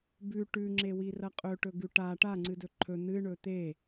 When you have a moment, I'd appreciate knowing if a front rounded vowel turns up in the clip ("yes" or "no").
no